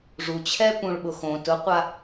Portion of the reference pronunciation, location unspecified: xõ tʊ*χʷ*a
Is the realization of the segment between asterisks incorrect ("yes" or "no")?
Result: yes